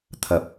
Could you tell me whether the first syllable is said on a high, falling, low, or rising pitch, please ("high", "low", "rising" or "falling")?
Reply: low